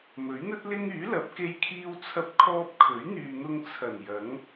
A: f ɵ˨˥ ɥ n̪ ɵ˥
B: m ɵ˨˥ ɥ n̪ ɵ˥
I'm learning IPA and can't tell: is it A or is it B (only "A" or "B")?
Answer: B